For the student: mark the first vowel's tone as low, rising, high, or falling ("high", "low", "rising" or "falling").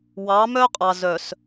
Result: rising